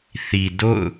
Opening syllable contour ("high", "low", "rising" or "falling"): low